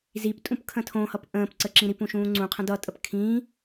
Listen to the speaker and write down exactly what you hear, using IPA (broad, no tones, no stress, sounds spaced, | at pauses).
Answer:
z i p tʼ ũ p kʰ ə̃ tʰ õ h ʌ p ʔ ə̃ː p ǀ ə ǁ ĩ ɾ i p ũ ʃ ũː ŋ͡ǀ ũ qʰ ə̃ d ʌ tʼ ə p kʰ ĩ